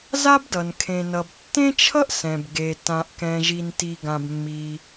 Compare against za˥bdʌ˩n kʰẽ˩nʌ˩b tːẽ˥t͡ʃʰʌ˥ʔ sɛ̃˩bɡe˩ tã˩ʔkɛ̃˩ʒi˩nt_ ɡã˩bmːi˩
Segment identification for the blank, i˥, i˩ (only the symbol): i˩